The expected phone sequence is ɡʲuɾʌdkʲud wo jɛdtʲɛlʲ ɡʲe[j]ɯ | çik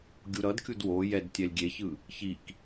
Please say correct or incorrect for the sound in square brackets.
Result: incorrect: ç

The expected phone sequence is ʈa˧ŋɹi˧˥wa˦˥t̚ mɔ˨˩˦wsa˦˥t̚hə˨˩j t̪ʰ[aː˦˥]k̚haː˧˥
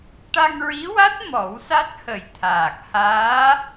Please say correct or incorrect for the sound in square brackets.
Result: incorrect: aː˨˩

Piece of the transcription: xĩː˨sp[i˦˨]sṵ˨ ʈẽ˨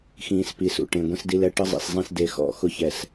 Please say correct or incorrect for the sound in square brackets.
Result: incorrect: i˨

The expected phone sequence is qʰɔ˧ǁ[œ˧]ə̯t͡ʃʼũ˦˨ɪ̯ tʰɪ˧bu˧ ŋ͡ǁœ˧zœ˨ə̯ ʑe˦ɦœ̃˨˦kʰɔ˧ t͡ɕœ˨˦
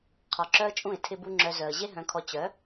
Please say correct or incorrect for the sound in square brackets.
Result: incorrect: œ˦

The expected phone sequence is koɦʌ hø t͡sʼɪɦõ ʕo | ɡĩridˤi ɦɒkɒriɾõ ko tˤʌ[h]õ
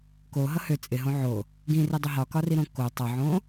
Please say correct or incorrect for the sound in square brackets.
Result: incorrect: ʕ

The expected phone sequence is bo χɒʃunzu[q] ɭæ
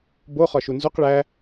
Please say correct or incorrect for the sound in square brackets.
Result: correct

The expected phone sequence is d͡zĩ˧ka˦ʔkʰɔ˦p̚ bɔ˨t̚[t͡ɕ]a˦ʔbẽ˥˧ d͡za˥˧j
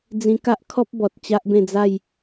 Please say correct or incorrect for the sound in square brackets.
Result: correct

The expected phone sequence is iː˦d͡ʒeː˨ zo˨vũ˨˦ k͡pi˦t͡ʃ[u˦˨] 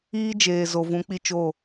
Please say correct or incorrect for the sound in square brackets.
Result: incorrect: o˦˨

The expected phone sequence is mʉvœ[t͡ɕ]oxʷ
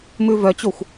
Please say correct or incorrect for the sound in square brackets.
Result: correct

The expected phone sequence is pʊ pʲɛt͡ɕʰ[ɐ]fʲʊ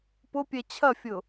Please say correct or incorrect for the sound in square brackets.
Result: correct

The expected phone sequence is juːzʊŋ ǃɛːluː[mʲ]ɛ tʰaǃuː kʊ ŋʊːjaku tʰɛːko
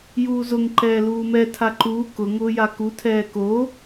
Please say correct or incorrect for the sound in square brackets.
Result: incorrect: m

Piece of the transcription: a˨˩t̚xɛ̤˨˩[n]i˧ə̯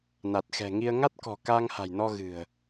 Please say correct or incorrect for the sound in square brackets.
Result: incorrect: ŋ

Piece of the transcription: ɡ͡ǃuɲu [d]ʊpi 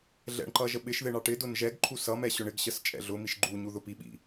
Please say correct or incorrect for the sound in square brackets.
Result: incorrect: ð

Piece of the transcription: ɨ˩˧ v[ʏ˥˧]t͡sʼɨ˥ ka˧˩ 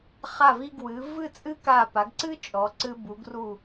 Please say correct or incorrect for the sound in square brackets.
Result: incorrect: ɨ˥˧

